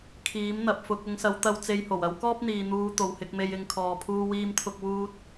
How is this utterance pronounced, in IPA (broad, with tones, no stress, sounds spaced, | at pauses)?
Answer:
kʰ iː˨˥ m n̪ ɐ˨˥ p̚ f ʊ˨˥ k̚ ʊ˨˧ ŋ s ɐ˨˧ w t̪ ɐ˧ w t͡s e˧ j h o˨˩ w ɐ˥ w k ɔː˥ p̚ n̪ iː˨ n̪ uː˧ t̪ o˨ w h ɪ˧ k̚ m e˧ j ɪ˧ ŋ kʰ ɔː˧ pʰ uː˥ w iː˥ m t̪ʰ ʊ˥ k̚ w uː˥ t̚